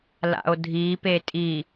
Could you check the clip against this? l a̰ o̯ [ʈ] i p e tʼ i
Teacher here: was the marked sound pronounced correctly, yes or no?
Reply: no